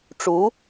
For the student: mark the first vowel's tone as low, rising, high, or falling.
rising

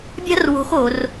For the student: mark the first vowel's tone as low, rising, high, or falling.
high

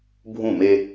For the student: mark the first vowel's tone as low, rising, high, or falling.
falling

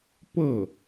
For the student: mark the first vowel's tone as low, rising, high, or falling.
falling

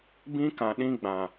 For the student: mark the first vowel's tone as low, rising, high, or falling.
high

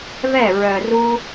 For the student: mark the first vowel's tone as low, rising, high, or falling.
falling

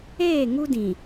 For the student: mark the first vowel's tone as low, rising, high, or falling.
falling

